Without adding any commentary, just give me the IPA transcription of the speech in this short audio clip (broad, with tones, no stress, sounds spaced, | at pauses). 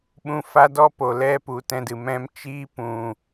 ɓ ũ˧ f a˦ d ɔ˦ p o˨ l ɛ˦ p u˨ t ɛ̃˧ d ɨ˨ m ɛ̃˦ m t͡ʃ iː˦ p ũ˨